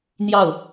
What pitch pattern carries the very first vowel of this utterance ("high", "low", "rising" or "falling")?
falling